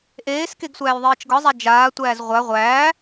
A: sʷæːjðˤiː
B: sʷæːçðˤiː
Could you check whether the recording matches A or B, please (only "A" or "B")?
A